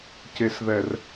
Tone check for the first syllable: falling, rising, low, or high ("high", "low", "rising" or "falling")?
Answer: low